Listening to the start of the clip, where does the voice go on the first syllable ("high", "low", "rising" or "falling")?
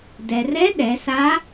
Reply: low